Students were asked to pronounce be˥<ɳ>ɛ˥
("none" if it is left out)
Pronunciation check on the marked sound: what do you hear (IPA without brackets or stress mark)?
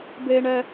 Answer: ɳ